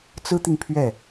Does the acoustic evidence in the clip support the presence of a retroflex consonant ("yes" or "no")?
no